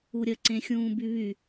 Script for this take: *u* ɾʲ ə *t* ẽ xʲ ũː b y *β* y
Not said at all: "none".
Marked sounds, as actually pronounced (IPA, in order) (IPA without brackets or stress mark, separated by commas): u, ǀ, β